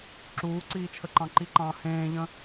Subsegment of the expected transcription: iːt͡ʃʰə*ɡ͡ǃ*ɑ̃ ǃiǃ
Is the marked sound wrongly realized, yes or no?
yes